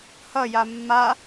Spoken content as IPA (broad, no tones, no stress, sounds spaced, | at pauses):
h ʌ j a mː a